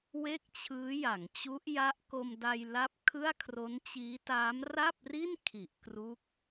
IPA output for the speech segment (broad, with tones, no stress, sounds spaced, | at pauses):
w e˥˩ k̚ t͡ɕʰ ɯː˦˥ j a˩˦ ŋ t͡ɕ u˦˥ ʔ j a˦˥ ʔ k o˧ m d a˧ j l a˦˥ p̚ kʰ ɯ˥˩ a̯ kʰ r o˦˥ n t͡ɕ iː˦˥ t aː˦˥ m r a˥˩ p̚ r i˥˩ n kʰ i˨˩ ʔ k r u˦˥ k̚